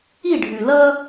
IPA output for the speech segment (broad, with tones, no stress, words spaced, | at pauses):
i˦˨ɖʱʉ˨ lʌ˦